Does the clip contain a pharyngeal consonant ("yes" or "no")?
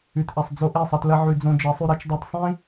yes